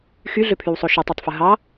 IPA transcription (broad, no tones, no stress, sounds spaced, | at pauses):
x y ɮ ø pʰ y w sˤ o ʃ y tˤ ø tˤ f ɯ ɦ ɑ